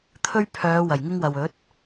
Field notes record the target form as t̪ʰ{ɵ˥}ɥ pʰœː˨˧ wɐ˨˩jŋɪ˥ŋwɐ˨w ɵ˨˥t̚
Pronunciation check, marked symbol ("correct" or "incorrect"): correct